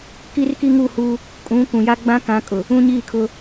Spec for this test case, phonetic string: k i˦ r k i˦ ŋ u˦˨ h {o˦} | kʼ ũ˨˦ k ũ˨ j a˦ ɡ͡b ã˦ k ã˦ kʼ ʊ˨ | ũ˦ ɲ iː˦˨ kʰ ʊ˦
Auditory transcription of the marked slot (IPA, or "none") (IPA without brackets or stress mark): u˦